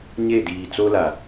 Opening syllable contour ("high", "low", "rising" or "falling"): falling